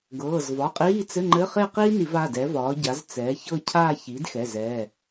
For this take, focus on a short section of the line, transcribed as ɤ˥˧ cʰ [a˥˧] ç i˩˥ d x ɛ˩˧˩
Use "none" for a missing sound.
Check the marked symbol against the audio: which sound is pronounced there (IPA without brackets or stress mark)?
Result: aː˥˧